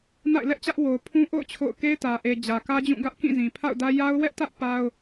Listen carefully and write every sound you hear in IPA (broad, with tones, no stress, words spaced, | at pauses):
na̰˦˨ɪ̯lɛ˦ʔt͡ɕä˦ʔwo˨ʊ̯ pʰũ˦ʔo̰˦˨ʊ̯ t͡ɕʰo̰˦˨ʊ̯ ke˦ɪ̯tä˨ʔe˨ d͡ʑä˨kä˦d͡ʑũ˦˨ ɡä˦ʔ kĩ˦˨zĩ˨ pʰa̰˦˨ʊ̯dä˦ ja˦ʊ̯wɛ˦ʔtä˦ʔ pa˦ʊ̯